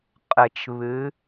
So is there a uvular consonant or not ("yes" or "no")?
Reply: yes